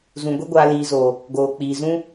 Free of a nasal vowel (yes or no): no